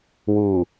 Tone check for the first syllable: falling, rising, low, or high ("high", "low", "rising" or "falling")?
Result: low